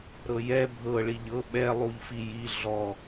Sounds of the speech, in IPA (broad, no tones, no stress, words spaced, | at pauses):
ɾɤjɛ bʱɤ ɭiʎɤ ɓɛ lˠuʎfiji ɮɔ